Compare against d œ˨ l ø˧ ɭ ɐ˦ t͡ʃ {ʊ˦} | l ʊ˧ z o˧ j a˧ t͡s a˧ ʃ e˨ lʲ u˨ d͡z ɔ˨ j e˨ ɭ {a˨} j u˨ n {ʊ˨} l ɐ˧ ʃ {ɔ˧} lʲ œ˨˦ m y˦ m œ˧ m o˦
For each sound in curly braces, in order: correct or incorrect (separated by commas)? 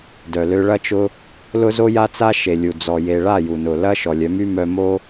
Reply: correct, incorrect, correct, incorrect